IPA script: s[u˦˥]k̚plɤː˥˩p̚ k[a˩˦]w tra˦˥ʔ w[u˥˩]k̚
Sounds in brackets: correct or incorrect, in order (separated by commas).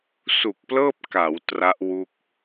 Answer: incorrect, correct, correct